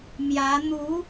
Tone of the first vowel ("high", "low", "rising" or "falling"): rising